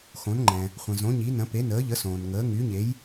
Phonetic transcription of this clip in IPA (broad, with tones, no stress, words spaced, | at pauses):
xõ˨˥nŋ͡ǃɛ̃˨ | χʷə̃˨zõ˨˥ ɲi˨˥nə̃˨˥ pe˨˥nəː˨˥ʎə˨˥ sõː˨nŋəː˨˥ ŋy˨˥ɲe˨˥j